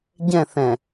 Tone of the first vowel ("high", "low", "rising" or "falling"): falling